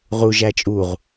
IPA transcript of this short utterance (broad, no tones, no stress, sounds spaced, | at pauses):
ʁ u ʒ æ t͡ʃʼ u ʁ